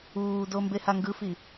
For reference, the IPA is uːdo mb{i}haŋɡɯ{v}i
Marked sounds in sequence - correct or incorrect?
incorrect: e, incorrect: f

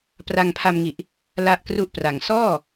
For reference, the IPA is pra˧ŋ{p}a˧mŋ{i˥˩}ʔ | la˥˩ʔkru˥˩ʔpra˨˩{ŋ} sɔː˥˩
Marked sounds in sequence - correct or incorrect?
incorrect: pʰ, incorrect: i˨˩, correct

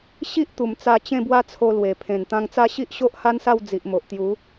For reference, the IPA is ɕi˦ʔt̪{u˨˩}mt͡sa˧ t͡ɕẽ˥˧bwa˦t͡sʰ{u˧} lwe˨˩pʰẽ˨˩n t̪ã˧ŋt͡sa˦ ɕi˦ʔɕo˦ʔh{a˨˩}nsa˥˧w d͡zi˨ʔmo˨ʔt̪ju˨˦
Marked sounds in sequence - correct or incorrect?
correct, incorrect: o˧, incorrect: a˦

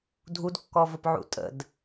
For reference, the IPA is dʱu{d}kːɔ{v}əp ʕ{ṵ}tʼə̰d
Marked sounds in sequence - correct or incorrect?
correct, correct, correct

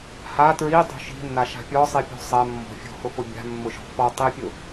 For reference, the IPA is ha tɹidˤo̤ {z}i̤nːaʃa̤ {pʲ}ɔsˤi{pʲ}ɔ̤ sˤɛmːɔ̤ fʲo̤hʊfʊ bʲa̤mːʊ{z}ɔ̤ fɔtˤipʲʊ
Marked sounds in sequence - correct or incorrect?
incorrect: ʃ, correct, correct, incorrect: ʃ

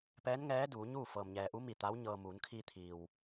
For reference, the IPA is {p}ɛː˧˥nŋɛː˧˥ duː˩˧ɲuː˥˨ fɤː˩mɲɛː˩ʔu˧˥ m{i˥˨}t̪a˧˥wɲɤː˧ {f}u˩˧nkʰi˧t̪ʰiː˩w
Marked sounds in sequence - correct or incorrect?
correct, incorrect: i˧˩, incorrect: m

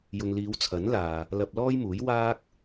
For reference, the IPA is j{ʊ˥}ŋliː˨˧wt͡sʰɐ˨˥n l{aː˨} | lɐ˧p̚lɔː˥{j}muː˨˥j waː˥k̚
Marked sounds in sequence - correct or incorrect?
incorrect: ʊ˨, correct, correct

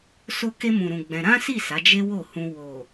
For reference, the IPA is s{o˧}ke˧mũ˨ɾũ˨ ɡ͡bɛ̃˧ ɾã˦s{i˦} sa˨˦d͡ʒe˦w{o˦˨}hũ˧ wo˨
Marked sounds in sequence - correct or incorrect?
correct, incorrect: i˦˨, correct

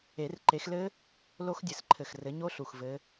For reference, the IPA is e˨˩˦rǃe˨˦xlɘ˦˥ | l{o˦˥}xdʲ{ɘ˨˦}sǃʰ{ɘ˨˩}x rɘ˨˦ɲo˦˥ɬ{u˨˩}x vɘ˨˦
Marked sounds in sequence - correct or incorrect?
correct, correct, correct, correct

